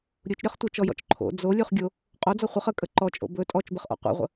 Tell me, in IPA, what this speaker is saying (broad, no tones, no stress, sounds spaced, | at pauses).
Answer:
ɾʲ u t͡ʃ ɾʲ ɔ χ tʷ ə t͡ʃ ɔ j ɔ̰ t͡ʃ ǃʰ o̰ d͡z o lʲ u χ ɡʲ o | qʼ o d͡z ɔ χʷ ə χ ə kʼ ə ǃ ɔ t͡ʃʼ o̰ b ɵ tʼ ɔ t͡ʃ b ə χ ʔ ɔ̰ qʷ ḛ ʁʷ ə̰